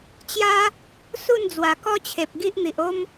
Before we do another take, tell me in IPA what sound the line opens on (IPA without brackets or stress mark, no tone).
t͡ɕ